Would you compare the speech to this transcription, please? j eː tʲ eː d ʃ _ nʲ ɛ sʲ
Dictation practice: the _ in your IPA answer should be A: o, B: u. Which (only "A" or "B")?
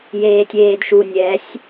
B